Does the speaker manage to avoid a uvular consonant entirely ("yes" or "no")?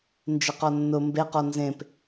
no